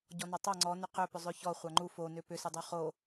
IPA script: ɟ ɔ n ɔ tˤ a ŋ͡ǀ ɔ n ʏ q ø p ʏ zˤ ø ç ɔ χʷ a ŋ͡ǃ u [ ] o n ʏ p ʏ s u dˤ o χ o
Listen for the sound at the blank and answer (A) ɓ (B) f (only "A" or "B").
B